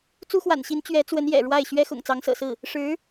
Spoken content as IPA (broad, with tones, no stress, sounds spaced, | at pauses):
t͡s u˥ x w a̰˨˩ n ɕ i˧˥ n t͡ɕ ɥ ɛ˧˥ t͡s w ə˧˥ n j ɛ̰˨˩ ɻ w a˥˩ ɪ̯ ɕ ɥ ɛ˥ x ʊ̰˨˩ ŋ t͡s ɑ˧˥ ŋ s ɤ̰˨˩ s ɹ̩˥˩ | ʂ ɻ̩˧˥